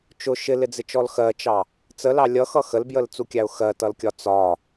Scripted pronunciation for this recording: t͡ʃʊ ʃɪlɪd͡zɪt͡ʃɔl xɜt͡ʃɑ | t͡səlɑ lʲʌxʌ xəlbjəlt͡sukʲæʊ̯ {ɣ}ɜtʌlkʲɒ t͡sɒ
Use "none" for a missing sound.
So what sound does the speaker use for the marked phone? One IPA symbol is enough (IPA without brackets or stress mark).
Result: x